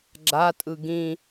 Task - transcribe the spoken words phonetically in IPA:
ɡ͡ǁ a tʼ ɯ ɡ ĩ

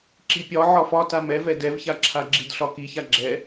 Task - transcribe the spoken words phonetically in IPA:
ǁ i pʲ ɒ ʕ ɒ f ɒ t a m ɛ v ɛ d ɛ v ç a ǁʰ a ɡ͡ǁ i d ɬ ɒ k i ç a ɡ͡ǁ ɛ

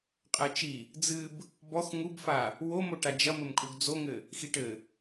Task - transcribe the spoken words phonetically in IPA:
qʼ ɛ t͡ʃ i | d͡z ɨ b | b ɔ x ŋ u b f a | w o m o ʈ a d͡ʒ ɐ m ɘ m kʼ u ɡ d͡z o ŋ ɘ | x i ʈ ɘ

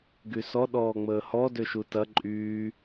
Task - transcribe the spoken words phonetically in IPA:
ɡ y s ɔ ɗ ɔː ŋ͡m əː h ɔ d ø ʃ u t ɐ ǃʼ yː

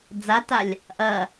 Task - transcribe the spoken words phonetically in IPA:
d͡z a t a lʲ | ʔ ɐ

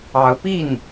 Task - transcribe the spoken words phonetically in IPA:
ɑ˧˥ ʊ̯ p i˥˩ n

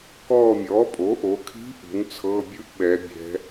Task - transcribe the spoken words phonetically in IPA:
k ɔː˦˨ mʲ ɔː˩˥ pʼ o˩˥ ʔ o˩˧ kʰ i̤˧˥ ʔ ṳ˩˥ n t͡sʰ ɤː˧˥˧ bʲ ɯ˥ ʔ ɓ ɛ˩˧ bʲ ɛ̤˩˧

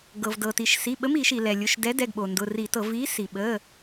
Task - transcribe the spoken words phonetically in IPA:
ɡ ɤ˩ v d ɤ˩ t i˩ ʃ s i˩˧˩ ɓ ə˨˥ m i˧˩˧ ʃ i˩ l ɛ˩ lʲ ʊ˩˧˩ ʃ d ɛ˨˥ d ɛ˩˧˩ ɡ ɓ o˩ n d ʊ˩˧˩ r i˧˩˧ t ɤ˧˩˧ v i˨˥ s i˩ ɓ ə˩˧˩

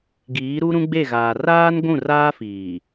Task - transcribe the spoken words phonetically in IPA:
ɡ iː˨˦ ɾ u˦ ɾ ũ˦ ɡ͡b e˦˨ ɣ aː˨ r aː˦ n ɡʷ ũ˦˨ r aː˦ f iː˨

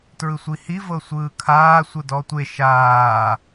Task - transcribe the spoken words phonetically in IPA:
t ɹ ɯ sʷ i h i v ɤ sʷ ɯː kʰ aː sʷ ɯ d ɔ tʷ e ʃ aː

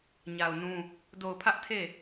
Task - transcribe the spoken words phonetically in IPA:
ɲ a˨ ʊ̯ n ũ˦ | d o˨ ʊ̯ pʰ ä˦ ʔ tʰ e˦˨

